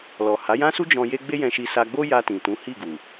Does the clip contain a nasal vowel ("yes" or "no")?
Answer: yes